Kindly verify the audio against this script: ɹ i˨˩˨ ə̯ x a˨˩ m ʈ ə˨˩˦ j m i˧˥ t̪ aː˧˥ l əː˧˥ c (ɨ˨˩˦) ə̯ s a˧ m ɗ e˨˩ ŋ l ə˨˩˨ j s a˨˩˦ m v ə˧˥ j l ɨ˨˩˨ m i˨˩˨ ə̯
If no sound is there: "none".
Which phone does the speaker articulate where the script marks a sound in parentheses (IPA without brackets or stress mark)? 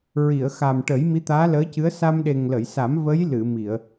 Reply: ɨ˧˥